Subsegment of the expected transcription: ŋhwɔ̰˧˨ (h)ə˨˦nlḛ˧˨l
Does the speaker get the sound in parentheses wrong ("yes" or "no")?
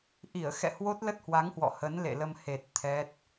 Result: no